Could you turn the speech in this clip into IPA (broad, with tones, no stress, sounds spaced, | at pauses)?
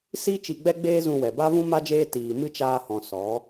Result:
s i˦ t͡ʃ i˧ ɡ͡b ɛ˦ ɡ͡b eː˦ z ũ˧ w ɛ˨ b a˦ v ũ˦ m a˦ d͡ʒ eː˦ t iː˨ m ɨ˦ t͡ʃ aː˧ h ɔ̃˨ s ɔ˨˦